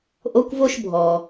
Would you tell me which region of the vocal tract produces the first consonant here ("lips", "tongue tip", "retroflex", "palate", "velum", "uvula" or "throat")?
throat